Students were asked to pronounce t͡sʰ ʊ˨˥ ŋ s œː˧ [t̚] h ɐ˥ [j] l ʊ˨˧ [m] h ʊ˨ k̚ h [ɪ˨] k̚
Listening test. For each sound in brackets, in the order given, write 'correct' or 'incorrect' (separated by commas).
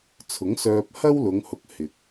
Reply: incorrect, incorrect, incorrect, correct